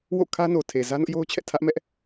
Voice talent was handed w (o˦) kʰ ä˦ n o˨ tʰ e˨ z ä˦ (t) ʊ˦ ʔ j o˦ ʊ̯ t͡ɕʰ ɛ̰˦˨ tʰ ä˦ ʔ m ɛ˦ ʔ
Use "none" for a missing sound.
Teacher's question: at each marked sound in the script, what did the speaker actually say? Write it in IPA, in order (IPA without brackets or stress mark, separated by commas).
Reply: o̰˦˨, n